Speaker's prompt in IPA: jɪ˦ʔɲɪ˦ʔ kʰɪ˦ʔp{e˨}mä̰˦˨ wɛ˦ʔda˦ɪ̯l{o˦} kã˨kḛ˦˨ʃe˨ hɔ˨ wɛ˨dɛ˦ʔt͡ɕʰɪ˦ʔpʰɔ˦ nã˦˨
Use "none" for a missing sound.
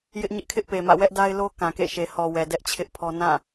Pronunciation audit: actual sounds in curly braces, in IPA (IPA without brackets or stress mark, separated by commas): e˨, o˦